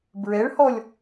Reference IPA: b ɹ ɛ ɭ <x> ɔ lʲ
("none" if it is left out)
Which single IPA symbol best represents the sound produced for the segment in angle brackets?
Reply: h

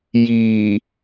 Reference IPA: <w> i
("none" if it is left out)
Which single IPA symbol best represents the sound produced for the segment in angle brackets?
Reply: j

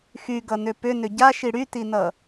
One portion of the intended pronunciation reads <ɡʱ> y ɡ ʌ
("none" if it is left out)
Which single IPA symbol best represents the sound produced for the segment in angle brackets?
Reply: x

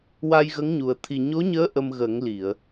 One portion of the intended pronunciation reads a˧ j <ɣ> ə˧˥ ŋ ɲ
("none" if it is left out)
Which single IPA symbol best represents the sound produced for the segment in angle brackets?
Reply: ɣ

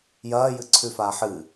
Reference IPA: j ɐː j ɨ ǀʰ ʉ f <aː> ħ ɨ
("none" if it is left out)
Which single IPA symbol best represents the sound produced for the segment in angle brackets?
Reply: aː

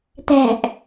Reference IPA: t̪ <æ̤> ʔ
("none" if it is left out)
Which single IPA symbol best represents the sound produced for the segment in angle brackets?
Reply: æ̤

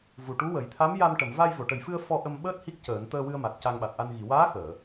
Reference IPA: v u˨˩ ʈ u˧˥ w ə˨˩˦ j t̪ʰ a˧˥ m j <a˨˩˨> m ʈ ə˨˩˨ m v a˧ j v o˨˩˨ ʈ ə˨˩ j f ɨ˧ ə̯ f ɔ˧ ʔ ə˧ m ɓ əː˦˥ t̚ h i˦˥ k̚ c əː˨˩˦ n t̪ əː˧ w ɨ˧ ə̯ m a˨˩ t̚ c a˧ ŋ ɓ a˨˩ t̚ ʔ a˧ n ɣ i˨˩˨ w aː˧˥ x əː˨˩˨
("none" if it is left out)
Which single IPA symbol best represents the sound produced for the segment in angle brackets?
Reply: a˧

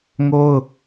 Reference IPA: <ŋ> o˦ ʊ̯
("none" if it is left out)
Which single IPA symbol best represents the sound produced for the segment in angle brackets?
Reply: ŋ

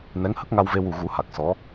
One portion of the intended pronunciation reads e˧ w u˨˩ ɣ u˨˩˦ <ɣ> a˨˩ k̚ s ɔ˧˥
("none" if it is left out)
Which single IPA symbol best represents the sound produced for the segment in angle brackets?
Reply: h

